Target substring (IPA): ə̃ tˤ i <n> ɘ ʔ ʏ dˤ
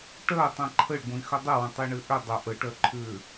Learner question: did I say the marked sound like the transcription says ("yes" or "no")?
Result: no